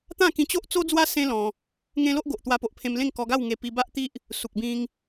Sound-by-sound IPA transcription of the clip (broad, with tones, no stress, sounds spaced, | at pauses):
t̪ ã˥˧ k ĩ˧ t͡ɕ o˦ ʔ t͡s o˦ d͡z w a˦ s ẽ˦ l ɔ̃˧ | ŋ ẽ˦ l o˦ ʔ ɡ o˨ ʔ t̪ w a˧ p o˨ ʔ pʰ ẽ˧ m l ẽ˥˧ ŋ k ɔ˧ ɡ a˥˧ w ŋ e˧ p i˧ b a˦ ʔ t̪ i˦ ʔ | s u˨ k̚ b ĩ˧ ŋ